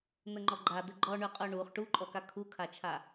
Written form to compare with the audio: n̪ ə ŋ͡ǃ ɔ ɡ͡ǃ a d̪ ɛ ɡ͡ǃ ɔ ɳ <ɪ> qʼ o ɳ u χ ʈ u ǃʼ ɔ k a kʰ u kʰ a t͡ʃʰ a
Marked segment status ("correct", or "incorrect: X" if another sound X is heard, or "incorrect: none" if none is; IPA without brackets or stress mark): incorrect: y